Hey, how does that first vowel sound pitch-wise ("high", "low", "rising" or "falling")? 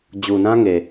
low